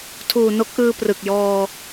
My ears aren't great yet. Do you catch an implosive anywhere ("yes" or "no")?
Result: no